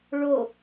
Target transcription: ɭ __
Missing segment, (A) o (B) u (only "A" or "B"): A